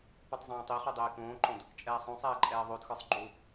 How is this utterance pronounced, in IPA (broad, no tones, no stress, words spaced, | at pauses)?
putˤzˤẽːtˤiχu dˤeːkõːǃõd | t͡ʃʼɛːsˤõsˤɛː ǃʼɛːðˤodxə˞sˤ ɡ͡ǃu